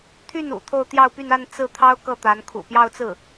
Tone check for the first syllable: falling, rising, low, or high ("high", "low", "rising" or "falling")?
falling